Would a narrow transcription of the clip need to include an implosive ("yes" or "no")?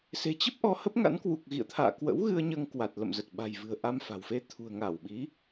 yes